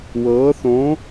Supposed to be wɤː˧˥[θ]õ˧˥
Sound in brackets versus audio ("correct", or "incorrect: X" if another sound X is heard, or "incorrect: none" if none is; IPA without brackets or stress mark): correct